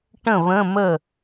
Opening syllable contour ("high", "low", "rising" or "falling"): falling